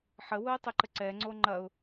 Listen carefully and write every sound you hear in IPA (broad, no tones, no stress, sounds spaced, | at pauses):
ħ ə w ʊ ɪ̯ tˤ ɪ ǃ ə ǀ ɛ ŋ͡ǀ o ŋ͡ǃ ɐ ʊ̯